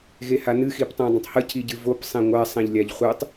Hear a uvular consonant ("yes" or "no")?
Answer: yes